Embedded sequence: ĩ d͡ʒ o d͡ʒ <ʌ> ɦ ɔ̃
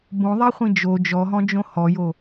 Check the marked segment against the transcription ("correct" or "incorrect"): incorrect